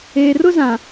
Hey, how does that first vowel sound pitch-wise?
low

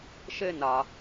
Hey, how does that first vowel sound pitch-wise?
high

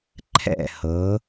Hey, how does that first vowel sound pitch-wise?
falling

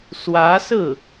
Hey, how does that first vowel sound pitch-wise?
rising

